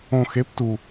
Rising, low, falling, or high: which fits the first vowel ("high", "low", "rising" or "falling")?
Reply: low